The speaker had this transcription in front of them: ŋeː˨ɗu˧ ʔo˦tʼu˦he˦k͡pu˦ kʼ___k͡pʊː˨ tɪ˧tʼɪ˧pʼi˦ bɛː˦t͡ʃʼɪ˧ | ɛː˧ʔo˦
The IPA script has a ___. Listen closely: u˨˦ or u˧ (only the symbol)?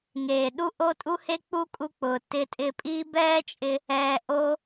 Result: u˧